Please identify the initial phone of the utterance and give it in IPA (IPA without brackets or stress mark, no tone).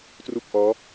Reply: t